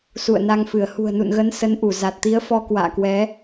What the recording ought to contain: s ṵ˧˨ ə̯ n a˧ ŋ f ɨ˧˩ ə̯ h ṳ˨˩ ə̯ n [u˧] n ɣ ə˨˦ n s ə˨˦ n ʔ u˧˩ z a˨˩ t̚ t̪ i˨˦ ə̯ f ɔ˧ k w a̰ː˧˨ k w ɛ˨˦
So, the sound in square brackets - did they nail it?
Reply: no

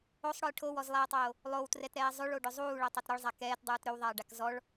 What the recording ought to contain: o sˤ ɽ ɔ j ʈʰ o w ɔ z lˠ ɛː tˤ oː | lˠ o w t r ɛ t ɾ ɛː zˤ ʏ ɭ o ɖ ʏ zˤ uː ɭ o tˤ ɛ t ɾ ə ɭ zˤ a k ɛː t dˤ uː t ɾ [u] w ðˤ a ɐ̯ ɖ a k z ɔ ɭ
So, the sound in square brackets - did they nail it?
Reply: no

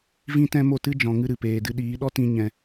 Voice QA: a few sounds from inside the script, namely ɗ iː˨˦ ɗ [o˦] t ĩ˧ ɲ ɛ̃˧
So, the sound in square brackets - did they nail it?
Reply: no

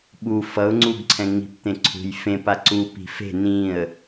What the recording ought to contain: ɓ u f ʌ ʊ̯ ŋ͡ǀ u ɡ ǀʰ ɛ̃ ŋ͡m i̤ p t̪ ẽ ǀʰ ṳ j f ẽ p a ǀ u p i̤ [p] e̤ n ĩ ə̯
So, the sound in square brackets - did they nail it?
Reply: no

